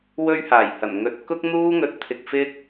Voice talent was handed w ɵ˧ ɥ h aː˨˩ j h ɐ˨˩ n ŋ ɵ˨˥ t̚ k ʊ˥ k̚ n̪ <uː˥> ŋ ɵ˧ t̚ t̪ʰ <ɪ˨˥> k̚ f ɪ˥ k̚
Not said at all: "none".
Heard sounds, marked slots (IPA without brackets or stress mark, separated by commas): uː˥, ɪ˧